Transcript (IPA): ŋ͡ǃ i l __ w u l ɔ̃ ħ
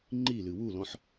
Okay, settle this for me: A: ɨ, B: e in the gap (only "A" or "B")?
A